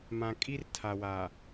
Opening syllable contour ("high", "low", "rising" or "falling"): low